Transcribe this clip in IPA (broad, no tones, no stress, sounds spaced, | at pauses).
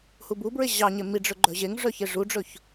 h u b u b ɹ e ʑ ɑ ɲ e m i ɖ͡ʐ ɵ ɡ͡ǃ œ ʑ e ŋ ʐ œ ç e ʐ u ɖ͡ʐ ɵ ç